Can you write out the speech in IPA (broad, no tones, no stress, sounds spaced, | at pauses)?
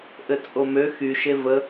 ʔ ɘ t͡sʼ o m ø x y ʃ e v ə